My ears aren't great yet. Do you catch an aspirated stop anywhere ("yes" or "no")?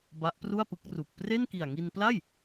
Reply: no